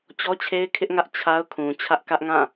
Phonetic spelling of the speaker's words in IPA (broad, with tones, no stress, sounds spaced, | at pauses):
t͡ɕ ɔ˦ t͡ɕʰ e˦ ɪ̯ kʰ ɪ˦ ʔ ŋ ä˦ ʔ t͡ɕʰ a˦ ʊ̯ kʰ ũ˨ t͡ɕʰ ä˦ ʔ k ä˦ ʔ ŋ ã˦˨